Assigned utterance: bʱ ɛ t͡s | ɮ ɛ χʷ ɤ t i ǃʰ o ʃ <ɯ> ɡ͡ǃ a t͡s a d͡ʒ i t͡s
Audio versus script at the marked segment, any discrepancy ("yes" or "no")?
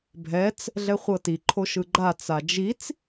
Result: no